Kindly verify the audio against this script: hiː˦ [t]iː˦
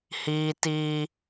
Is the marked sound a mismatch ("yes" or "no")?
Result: no